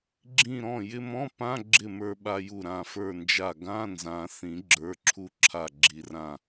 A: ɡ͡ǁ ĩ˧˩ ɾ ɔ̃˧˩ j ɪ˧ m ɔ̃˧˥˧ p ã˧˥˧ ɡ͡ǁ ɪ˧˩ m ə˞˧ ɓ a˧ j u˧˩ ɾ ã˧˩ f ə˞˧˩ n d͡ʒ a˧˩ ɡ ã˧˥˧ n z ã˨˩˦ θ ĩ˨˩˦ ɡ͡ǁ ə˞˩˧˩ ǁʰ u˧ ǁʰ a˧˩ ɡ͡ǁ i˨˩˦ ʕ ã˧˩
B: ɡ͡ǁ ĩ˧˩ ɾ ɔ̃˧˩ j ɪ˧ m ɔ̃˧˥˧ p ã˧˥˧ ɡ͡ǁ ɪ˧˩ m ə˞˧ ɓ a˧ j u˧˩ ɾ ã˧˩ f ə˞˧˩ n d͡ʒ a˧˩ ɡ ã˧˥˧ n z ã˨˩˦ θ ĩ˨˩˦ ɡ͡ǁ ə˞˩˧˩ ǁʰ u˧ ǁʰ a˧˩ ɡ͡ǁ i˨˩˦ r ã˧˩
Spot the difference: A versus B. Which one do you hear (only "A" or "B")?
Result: B